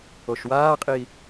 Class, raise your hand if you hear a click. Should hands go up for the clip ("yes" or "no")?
no